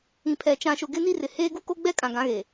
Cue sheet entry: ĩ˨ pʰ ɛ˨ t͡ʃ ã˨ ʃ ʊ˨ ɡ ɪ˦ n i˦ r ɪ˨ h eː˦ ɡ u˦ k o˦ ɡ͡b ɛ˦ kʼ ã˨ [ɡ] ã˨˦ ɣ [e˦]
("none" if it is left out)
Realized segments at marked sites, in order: ɡ, e˨

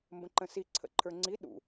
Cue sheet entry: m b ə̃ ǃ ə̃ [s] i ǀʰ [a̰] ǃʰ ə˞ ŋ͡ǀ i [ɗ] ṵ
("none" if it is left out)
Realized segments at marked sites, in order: s, ə̰, ɗ

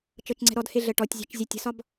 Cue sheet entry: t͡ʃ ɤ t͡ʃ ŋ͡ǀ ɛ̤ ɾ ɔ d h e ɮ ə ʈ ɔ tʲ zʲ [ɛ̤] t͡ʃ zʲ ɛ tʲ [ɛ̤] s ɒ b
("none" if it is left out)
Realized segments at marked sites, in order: ɛ̤, ə̤

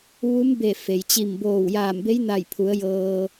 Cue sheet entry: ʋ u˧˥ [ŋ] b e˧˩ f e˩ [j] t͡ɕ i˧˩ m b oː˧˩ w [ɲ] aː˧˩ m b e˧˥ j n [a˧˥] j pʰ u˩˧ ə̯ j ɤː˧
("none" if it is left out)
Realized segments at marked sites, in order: m, j, j, a˧˩

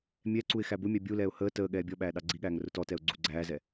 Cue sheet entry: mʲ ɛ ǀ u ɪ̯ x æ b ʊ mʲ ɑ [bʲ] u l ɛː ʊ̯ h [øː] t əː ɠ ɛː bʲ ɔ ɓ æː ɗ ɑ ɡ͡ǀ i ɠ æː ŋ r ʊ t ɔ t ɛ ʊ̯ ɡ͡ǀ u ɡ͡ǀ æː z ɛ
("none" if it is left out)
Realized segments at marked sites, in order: bʲ, əː

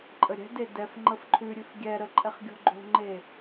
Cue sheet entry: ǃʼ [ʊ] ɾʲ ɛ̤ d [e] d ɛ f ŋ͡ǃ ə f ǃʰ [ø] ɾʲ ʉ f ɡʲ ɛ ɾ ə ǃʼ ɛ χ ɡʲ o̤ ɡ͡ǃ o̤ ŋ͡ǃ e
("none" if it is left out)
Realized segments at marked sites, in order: ə, e, ʉ

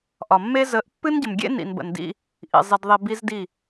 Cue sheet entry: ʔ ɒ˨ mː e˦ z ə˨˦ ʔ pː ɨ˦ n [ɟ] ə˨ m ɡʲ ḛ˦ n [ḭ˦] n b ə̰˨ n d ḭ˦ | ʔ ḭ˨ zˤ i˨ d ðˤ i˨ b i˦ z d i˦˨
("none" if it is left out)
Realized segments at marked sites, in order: ɟ, ḭ˨

